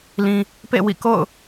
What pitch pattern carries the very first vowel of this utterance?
low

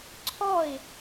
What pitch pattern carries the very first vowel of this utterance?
falling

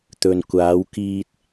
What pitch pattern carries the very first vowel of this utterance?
low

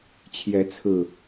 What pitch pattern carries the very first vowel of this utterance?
rising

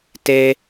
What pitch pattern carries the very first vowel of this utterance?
high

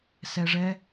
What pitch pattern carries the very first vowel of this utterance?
low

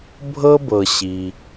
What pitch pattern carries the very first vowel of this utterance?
high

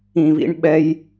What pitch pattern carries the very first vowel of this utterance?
high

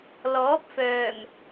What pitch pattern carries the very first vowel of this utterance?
rising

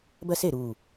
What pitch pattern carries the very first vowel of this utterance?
high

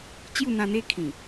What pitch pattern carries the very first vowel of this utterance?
falling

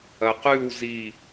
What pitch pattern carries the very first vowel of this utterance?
low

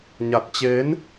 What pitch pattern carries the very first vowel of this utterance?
low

